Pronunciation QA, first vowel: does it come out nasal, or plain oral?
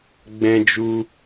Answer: nasal